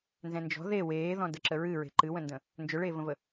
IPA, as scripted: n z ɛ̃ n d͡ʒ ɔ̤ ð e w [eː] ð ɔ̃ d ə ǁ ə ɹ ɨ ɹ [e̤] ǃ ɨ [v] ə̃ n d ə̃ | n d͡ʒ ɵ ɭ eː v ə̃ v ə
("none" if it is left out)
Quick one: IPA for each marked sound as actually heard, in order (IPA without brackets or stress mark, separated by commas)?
eː, e̤, w